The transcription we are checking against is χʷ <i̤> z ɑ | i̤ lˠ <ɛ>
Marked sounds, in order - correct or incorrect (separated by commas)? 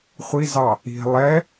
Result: incorrect, correct